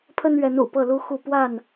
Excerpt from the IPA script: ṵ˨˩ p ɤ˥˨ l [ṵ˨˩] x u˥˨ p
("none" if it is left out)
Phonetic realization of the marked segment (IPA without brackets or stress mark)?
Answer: u˦